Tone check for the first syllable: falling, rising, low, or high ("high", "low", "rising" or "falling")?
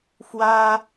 high